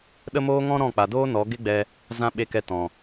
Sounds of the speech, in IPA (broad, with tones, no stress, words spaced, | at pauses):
ɗə˦moː˦ŋɔ̃˦ ɾɔ̃˦˨k͡pa˨doː˦ nɔ˨˦ ɡe˦ɡ͡bɛ˧ | zã˧ ɓe˨kɛ˨ tɔ̃˨